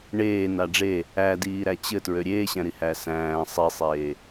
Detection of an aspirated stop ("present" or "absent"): absent